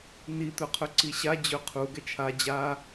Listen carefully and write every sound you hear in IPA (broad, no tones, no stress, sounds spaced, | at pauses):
n i t̪ ɵ qʰ ɵ ǀ i ɕ a d͡ʑ ɵ qʰ u ɡ ɛ t͡ʃʰ a d͡ʑ a